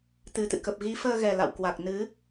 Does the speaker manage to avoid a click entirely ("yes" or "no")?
yes